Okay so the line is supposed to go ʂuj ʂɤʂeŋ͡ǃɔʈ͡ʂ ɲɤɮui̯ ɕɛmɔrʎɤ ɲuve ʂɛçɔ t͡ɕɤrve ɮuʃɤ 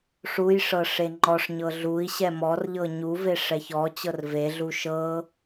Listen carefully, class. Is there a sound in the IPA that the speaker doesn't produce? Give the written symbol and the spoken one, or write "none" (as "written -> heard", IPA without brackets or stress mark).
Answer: ʈ͡ʂ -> ʂ